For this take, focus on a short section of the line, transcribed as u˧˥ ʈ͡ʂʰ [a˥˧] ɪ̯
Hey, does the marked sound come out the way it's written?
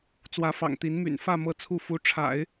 no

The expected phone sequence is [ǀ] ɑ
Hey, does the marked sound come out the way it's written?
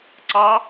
yes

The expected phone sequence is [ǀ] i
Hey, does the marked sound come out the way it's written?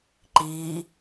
no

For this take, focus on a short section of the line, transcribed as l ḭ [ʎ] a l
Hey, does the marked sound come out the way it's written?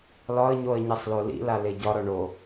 no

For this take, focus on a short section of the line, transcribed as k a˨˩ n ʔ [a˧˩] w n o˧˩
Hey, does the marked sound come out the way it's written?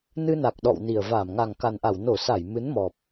yes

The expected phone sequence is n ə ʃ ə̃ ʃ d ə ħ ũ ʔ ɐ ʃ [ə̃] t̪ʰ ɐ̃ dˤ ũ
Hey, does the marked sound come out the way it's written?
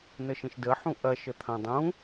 no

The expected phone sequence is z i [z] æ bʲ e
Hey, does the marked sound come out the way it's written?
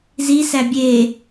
no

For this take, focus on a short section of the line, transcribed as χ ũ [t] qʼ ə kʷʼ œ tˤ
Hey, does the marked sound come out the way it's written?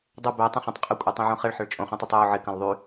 no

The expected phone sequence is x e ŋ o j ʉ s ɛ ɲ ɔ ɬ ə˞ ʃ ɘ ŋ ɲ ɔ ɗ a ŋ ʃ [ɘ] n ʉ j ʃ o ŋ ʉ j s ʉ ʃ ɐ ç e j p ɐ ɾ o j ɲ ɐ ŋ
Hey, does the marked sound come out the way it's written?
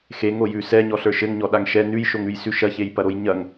no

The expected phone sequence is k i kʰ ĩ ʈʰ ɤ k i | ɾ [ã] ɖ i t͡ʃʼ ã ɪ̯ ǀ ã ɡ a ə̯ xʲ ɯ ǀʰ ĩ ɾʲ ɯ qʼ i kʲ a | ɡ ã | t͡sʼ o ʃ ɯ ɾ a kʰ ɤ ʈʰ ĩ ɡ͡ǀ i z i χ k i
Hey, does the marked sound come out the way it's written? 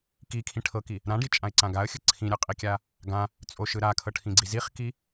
yes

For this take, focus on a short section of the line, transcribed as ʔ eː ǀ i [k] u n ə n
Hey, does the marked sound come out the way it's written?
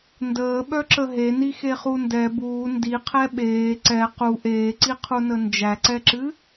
no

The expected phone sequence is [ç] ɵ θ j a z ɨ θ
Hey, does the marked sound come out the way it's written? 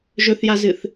no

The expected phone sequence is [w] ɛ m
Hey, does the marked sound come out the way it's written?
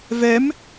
no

